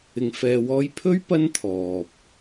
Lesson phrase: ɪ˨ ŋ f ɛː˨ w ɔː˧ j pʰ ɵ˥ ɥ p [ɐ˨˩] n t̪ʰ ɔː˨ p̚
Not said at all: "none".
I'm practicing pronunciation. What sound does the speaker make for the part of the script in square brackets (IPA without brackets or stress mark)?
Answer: ɐ˥